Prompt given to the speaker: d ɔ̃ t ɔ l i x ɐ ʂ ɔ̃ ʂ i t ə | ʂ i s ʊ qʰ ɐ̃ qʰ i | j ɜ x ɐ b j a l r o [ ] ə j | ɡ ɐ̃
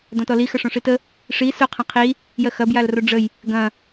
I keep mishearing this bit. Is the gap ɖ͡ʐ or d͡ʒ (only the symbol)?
ɖ͡ʐ